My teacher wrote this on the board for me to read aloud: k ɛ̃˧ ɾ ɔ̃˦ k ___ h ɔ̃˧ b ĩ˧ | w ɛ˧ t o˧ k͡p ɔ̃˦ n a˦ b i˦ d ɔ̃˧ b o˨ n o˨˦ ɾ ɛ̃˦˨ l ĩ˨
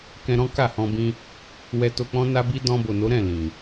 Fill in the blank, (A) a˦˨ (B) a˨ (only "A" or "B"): A